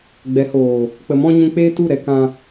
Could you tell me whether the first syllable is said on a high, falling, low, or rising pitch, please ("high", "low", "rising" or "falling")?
rising